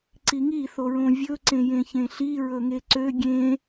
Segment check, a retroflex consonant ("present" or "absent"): absent